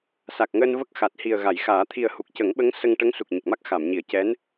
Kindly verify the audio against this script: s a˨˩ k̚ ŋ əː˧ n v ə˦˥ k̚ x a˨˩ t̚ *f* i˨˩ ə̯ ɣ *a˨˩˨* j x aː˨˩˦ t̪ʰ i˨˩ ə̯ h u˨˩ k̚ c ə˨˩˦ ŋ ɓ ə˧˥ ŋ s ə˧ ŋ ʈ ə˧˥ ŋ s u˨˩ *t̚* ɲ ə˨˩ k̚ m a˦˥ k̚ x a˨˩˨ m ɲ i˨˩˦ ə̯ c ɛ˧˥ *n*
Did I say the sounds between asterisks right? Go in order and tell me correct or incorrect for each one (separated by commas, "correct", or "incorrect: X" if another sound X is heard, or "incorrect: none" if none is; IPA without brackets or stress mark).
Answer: incorrect: h, correct, incorrect: k̚, correct